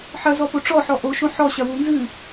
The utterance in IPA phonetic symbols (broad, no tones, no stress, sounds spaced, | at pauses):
ħ ɐ z ɔ p o ʈ͡ʂ ɔ ħ ɔ ʔ o ʃ õ ħ ɔ ɕ ɐ w u n z ɨ